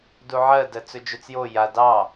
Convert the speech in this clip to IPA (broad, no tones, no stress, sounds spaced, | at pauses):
d u ʕ ɜ d ɜ t͡s ɵ d͡ʒ ɵ t͡s j o j a d ɑ